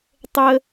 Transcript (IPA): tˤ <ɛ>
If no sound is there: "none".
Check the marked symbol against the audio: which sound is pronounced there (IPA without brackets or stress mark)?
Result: ə